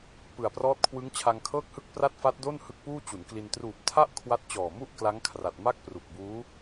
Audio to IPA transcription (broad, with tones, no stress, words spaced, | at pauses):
pɯ˨˩a̯prɔː˦˥t̚ kʰwɯ˦˥ŋt͡ɕʰa˧ŋkʰɤː˥˩k̚hɯ˥˩k̚ pra˥˩t̚fa˦˥t̚do˥˩n hɯ˦˥k̚puː˥˩t͡ɕu˩˦nkli˧n truː˨˩p̚tʰa˥˩ʔ kʰwa˥˩t̚ t͡ɕɔː˨˩mu˥˩ʔ kla˦˥ŋkʰra˨˩t̚ ma˥˩k̚pru˨˩k̚buː˦˥